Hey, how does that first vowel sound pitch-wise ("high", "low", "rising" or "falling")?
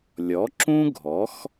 rising